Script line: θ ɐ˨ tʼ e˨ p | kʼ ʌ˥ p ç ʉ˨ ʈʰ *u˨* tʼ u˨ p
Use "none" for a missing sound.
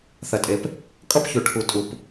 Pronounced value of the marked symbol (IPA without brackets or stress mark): u˨